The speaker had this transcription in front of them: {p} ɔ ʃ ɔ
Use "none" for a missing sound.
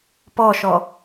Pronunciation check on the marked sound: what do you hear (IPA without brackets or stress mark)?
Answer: p